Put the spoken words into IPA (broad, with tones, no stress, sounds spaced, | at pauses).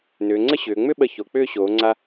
n ʏː˩˧ ŋ͡ǀ ə˥ ɕ ʏː˩˧ ŋ͡m ʏ˥˧ ɓ ə˧˩ ç o˩˧ k͡p ʏː˥˧ ɕ oː˩˧ ŋ͡ǀ a˧